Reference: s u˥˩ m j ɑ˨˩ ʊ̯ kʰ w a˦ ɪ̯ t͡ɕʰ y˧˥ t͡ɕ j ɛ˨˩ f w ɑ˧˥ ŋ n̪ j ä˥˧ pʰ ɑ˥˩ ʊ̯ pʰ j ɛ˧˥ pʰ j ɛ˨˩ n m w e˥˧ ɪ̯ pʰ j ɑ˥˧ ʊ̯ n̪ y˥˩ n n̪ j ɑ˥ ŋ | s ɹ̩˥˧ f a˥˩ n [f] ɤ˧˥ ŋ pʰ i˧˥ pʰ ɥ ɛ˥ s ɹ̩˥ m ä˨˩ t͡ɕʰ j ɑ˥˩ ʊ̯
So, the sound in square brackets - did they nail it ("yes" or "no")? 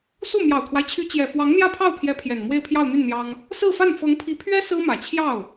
yes